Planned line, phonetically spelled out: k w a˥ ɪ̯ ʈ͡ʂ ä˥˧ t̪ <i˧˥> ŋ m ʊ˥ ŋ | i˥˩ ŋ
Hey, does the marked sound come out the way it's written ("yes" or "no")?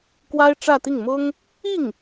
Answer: no